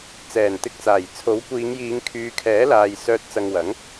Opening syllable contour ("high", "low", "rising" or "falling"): low